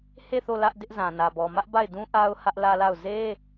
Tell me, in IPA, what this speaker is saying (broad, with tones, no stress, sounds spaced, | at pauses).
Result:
h e˦˨ θ o˦˨ l ä˦ ʔ d ɪ˦ ʔ z ã˨ n ä˨ b ɔ˨ m ä˦ ʔ b a˦˨ ɪ̯ d ũ˦ ʔ a˦ ʊ̯ h ä˦ ʔ l ä˦ l a˦˨ ʊ̯ z e˦